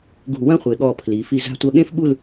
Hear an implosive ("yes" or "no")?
yes